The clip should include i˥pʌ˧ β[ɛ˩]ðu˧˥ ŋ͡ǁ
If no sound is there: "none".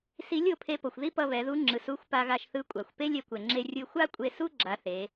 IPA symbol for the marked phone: ɛ˩˧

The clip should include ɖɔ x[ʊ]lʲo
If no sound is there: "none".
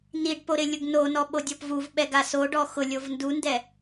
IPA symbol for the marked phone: ʊ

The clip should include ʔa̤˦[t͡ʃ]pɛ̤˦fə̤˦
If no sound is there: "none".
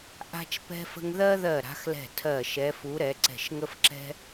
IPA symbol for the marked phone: t͡ʃ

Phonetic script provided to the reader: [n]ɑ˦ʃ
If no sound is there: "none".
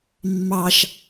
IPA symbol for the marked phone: mː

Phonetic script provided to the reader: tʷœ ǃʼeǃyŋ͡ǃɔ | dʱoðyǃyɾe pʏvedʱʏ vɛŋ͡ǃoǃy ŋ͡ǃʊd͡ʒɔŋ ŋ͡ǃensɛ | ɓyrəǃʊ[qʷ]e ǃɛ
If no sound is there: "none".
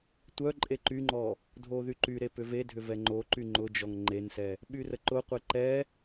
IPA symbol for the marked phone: qʷ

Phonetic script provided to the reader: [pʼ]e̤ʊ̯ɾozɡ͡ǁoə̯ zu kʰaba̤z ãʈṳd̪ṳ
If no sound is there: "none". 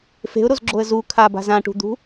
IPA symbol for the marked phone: f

